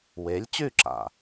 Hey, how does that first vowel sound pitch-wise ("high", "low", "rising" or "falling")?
rising